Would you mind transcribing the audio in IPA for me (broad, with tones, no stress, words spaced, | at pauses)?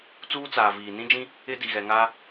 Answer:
t͡suː˦t͡saː˨ viː˨ nĩ˦d͡ʒĩ˦ | ɪ˦ di˨ɣɛ˨ŋaː˦